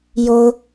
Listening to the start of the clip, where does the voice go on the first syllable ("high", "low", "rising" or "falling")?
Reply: high